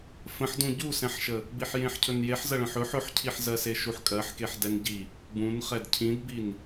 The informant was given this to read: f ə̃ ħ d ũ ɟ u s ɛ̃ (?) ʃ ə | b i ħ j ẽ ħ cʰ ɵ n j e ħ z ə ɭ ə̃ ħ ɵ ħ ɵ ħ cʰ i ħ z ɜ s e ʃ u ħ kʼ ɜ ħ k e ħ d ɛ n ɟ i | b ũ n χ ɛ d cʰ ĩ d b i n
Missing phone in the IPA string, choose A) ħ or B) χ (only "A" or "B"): A